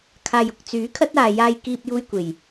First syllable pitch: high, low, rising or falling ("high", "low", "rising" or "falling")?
low